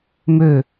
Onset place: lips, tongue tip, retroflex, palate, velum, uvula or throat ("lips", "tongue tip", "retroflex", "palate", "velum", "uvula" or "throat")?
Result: lips